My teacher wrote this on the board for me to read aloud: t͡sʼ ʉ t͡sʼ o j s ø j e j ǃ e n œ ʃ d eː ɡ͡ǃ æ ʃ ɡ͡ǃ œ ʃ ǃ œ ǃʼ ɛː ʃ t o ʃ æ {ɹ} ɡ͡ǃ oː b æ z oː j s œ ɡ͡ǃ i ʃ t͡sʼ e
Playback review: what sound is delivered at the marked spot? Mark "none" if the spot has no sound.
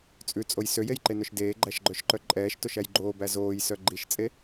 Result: j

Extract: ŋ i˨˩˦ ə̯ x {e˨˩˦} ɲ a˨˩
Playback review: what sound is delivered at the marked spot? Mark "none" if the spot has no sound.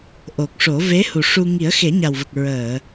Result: e˨˩˦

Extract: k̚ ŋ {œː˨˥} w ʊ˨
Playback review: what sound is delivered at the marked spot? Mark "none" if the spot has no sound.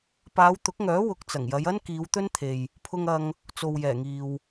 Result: œː˨˥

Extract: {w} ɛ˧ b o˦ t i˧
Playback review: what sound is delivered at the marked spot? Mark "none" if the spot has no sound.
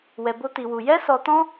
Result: w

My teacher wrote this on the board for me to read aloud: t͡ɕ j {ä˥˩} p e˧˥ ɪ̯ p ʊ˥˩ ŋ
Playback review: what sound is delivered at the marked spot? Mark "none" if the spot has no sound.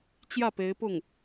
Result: ä˥˩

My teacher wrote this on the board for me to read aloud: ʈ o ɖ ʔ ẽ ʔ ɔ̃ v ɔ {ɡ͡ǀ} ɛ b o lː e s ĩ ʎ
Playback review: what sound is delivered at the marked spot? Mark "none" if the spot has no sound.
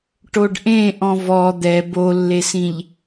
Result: d̪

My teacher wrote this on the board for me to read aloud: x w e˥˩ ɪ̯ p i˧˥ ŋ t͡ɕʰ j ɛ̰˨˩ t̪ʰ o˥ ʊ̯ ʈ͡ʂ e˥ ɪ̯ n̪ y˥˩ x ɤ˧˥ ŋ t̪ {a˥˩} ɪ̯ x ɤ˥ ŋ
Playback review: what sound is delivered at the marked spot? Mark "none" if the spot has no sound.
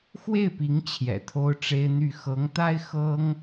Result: a˥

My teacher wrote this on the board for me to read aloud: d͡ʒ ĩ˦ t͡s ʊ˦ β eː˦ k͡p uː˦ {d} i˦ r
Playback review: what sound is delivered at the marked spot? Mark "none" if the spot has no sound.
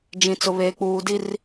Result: d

